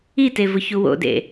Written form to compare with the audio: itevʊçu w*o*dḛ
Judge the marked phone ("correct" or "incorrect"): incorrect